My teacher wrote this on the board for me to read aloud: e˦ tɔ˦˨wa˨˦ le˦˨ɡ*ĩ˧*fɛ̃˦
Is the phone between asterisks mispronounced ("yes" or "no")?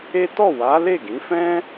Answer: yes